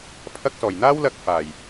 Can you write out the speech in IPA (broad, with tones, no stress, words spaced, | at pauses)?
pʰɐ˧k̚sɔː˨˩j n̪aː˥wlɐ˧k̚ faː˨˩j